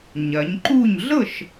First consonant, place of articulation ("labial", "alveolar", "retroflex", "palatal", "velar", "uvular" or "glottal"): palatal